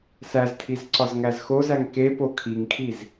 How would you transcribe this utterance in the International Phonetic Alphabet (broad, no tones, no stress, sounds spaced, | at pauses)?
s æ z tʰ i z ǀ ɒ z ŋ æ z x o z æ ŋ k e p o kʰ i ŋ kʰ i z